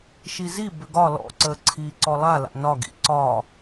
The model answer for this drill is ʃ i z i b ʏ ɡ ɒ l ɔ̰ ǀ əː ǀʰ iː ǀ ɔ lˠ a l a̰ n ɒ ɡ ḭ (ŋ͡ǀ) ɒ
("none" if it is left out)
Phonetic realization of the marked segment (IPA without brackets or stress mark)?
ǀ